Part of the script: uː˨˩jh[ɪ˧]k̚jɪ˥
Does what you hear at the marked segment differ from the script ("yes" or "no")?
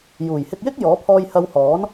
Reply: no